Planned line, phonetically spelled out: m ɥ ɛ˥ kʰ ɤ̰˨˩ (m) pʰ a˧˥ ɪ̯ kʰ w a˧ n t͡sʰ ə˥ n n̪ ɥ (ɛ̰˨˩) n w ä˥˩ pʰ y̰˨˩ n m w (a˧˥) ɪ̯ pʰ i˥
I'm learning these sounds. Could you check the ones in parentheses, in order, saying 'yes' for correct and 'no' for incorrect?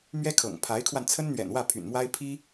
no, yes, no

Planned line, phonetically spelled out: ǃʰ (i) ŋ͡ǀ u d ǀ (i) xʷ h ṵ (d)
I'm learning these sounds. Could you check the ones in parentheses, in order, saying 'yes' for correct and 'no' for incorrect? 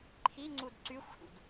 yes, no, yes

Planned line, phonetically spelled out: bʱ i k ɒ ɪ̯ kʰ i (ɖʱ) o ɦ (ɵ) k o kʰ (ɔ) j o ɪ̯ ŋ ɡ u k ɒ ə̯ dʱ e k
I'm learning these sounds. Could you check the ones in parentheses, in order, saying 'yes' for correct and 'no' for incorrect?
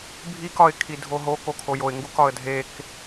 no, no, no

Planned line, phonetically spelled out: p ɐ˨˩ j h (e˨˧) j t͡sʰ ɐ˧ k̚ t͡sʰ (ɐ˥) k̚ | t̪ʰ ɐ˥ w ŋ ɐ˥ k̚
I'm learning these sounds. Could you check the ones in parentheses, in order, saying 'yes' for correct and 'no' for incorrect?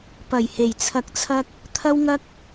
no, yes

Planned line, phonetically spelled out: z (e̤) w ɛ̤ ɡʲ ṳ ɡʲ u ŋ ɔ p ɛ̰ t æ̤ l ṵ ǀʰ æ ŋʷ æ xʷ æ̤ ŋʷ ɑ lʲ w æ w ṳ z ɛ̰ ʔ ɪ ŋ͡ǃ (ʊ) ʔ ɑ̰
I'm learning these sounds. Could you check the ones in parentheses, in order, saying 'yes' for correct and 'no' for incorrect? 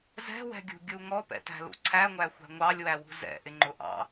no, yes

